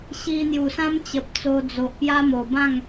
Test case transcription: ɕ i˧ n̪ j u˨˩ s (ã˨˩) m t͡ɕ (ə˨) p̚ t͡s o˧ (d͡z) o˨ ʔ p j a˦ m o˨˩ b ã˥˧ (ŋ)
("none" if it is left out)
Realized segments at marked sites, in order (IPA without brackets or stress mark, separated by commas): ã˦, ə˨, d͡z, ŋ